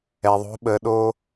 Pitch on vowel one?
low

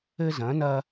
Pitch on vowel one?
high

